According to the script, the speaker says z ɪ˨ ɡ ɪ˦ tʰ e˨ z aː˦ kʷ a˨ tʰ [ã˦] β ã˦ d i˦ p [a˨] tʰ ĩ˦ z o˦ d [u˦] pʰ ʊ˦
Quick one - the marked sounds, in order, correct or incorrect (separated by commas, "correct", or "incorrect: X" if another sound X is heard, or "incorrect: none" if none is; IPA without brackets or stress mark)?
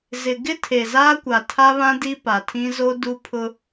incorrect: a˦, correct, correct